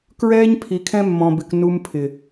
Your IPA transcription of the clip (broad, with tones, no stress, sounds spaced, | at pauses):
k ɹ ɛː˦ ɲ pʰ i˨ kʰ ɛ̃˦ mː ɔ̃˨ b ɪ˨ k n u˦ m pʰ ɪ˨